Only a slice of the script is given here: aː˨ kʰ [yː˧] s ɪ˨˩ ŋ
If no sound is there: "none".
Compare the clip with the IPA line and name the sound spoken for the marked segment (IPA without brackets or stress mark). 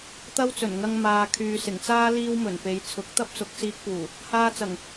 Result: yː˨